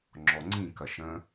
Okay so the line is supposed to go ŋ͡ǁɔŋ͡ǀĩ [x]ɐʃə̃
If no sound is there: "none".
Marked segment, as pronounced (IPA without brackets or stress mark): k